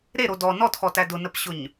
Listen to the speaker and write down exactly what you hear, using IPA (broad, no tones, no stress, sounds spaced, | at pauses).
ɾ e ɾ o d ɔ n ɔ t x ɔ t æ d ʊ n ə p ɕ ʊ ɲ